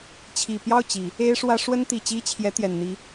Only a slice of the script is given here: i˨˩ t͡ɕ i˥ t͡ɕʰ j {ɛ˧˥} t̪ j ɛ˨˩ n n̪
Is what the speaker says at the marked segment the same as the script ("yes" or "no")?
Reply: yes